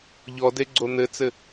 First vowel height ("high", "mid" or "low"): mid